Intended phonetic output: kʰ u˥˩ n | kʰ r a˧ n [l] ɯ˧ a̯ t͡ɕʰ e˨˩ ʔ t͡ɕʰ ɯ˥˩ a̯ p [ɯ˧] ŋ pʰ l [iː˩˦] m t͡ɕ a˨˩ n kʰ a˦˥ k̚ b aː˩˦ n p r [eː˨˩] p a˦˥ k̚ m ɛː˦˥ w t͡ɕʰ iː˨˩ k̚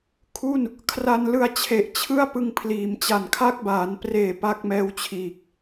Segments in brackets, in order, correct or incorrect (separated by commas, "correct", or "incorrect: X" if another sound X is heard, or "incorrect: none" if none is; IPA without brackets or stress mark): correct, correct, correct, correct